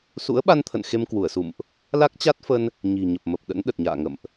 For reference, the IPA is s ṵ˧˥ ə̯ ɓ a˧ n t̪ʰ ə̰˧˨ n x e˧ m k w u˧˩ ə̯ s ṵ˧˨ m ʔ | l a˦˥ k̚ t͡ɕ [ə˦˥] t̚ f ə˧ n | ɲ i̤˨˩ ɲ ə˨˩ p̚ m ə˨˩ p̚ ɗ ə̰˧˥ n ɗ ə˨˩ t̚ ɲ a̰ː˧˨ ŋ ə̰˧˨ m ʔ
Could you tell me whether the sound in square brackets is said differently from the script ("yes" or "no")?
yes